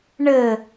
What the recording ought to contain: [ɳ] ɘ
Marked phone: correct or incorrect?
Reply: correct